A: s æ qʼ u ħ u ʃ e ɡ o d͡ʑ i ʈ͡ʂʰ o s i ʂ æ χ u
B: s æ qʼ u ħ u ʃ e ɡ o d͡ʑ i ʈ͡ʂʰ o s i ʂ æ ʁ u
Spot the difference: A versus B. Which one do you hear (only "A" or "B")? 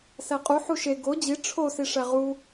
B